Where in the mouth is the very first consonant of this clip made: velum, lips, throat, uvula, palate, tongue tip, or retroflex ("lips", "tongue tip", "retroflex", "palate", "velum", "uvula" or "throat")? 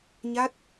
palate